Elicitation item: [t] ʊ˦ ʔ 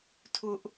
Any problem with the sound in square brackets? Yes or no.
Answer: yes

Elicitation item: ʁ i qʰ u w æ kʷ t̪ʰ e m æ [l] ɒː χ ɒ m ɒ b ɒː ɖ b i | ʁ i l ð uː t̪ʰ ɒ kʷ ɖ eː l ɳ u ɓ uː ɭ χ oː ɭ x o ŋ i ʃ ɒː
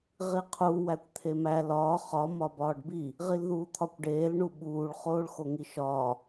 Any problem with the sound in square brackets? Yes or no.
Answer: no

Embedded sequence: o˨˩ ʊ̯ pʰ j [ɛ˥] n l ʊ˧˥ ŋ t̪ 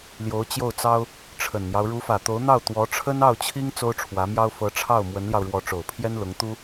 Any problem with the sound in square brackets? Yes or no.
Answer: no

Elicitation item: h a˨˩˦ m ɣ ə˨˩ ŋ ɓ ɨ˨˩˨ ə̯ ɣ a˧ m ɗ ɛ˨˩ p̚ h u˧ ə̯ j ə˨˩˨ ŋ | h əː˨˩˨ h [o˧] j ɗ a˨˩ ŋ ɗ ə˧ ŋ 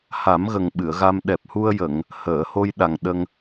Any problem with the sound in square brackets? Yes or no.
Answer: no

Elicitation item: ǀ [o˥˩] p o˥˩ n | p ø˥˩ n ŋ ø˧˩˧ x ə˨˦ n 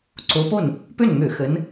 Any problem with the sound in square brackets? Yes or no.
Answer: yes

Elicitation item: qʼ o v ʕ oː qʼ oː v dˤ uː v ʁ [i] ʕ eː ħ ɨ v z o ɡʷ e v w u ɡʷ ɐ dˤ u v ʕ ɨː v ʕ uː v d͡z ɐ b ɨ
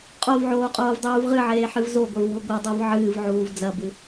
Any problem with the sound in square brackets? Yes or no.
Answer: yes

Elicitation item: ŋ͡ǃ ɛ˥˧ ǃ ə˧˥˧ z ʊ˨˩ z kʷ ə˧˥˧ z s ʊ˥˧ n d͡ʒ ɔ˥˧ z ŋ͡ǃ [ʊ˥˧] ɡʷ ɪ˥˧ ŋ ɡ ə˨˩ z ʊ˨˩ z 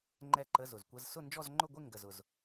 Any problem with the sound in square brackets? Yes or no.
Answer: no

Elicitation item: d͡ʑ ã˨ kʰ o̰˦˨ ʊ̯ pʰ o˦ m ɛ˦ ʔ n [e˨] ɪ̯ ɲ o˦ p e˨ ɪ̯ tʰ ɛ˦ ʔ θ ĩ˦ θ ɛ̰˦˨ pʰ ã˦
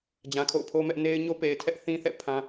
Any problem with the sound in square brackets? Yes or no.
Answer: yes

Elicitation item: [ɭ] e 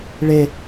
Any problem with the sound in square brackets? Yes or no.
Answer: no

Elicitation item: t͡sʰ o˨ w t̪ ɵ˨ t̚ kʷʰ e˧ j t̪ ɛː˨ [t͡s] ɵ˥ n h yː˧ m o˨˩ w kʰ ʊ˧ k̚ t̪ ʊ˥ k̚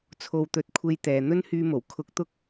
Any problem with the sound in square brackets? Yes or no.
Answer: yes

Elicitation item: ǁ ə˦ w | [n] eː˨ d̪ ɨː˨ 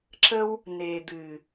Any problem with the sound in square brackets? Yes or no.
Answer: no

